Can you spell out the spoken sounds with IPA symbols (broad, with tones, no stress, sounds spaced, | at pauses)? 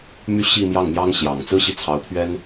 m y˥ ɕ i˥˧ m j ɑ˥˩ ŋ m j ɑ˥ ŋ ɕ j ɑ˨˩ ŋ t͡s ɹ̩˥ ɕ i˨ t͡sʰ ɑ˧˥ ʊ̯ pʰ ɥ ɛ˥ n